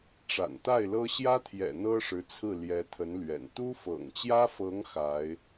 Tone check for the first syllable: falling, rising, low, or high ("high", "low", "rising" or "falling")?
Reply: low